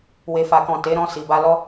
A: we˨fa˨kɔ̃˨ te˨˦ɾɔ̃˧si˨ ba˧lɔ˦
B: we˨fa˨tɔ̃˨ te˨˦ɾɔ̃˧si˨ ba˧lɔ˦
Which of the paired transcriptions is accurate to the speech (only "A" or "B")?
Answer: A